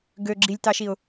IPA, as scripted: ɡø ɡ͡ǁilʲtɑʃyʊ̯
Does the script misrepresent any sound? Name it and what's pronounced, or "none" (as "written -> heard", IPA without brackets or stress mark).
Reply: y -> i